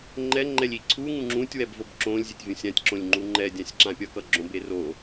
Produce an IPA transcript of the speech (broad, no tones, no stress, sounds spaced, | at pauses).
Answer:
ŋ͡ǃ ɛ ŋ͡ǃ ɛ lʲ i ǀʰ u ŋ ũ ŋ͡ǁ ũ tʲ w ɛ b v o b ǁ õ lʲ zʲ e tʲ vʲ ũ sʲ ã tʲ ǁ õ lʲ ŋ͡ǃ u ŋ͡ǃ ɛ dʲ ã sʲ ǁ ã pʲ ʌ k ʌ ɡ͡ǁ õ b e r o